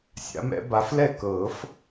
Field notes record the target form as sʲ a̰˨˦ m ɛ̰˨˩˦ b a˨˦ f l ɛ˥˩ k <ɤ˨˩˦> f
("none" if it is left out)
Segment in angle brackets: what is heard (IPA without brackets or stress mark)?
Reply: ɤ˨˩˦